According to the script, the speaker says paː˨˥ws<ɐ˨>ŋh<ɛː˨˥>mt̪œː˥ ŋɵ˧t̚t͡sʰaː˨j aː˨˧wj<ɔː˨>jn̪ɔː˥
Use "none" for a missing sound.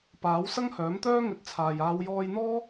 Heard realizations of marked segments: ɐ˥, œː˨˥, ɔː˧

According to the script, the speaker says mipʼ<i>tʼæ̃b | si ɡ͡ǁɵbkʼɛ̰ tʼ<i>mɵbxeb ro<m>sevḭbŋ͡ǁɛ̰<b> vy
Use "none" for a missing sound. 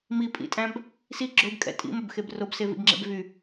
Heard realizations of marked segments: ḭ, ḭ, b, b

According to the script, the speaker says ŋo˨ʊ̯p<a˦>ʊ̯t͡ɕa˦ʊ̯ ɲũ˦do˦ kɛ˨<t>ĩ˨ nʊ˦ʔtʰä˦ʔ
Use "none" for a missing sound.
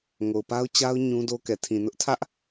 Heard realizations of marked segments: a˦, tʰ

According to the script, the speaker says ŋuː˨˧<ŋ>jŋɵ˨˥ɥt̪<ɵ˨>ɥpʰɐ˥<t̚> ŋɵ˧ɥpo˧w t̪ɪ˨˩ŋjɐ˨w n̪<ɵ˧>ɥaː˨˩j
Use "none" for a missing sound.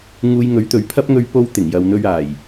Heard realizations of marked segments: none, ɵ˨, p̚, ɵ˧

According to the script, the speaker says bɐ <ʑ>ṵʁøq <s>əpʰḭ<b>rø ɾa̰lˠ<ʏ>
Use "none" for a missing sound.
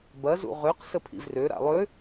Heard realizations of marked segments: z, s, v, ʏ

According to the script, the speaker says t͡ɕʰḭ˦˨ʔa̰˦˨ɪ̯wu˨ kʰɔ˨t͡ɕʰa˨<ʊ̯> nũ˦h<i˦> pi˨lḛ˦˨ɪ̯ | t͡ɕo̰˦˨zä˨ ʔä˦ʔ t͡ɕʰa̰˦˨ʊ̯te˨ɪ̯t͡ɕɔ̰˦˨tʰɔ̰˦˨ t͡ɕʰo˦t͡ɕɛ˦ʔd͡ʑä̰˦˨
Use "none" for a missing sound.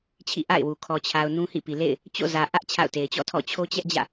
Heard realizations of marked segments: ʊ̯, ḭ˦˨

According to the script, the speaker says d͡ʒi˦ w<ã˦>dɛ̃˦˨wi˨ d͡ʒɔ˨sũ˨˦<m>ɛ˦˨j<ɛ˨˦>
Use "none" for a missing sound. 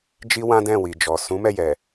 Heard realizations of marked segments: ã˦, m, ɛ˨

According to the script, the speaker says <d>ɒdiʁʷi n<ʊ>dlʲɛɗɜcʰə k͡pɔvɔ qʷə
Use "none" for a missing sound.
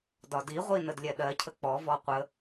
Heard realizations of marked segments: d, ə

